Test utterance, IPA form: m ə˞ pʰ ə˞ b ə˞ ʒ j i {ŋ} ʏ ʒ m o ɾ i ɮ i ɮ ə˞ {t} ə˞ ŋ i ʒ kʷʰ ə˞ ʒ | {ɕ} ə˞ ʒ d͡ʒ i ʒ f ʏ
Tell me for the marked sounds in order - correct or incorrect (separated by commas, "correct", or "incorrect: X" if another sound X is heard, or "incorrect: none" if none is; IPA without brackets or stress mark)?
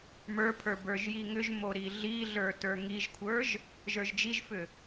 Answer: correct, correct, incorrect: ʒ